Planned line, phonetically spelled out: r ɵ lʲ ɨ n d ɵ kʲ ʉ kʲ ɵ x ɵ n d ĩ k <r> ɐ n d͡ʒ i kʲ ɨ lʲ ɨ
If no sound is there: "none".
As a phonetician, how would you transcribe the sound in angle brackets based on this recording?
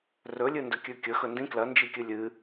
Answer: l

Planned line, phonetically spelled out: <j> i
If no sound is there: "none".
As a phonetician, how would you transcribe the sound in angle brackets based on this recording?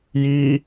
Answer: j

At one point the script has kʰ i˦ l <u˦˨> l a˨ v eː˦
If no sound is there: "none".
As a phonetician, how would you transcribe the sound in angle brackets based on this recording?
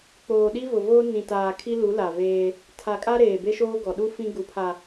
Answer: u˨˦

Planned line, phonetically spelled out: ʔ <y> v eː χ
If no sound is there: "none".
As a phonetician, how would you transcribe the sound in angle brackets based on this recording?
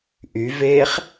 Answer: y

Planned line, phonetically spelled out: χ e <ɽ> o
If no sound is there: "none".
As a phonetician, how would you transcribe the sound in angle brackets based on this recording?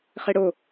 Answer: ɽ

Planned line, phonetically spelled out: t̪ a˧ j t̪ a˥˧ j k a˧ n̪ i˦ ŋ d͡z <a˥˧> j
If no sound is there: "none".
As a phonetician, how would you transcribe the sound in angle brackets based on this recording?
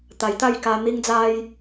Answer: a˦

